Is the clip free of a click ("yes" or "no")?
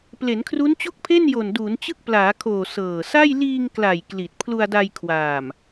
yes